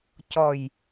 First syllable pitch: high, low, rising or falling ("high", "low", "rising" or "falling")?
low